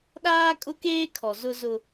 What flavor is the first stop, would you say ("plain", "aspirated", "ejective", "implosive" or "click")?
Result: implosive